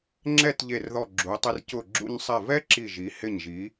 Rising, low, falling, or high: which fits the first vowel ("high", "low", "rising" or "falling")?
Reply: falling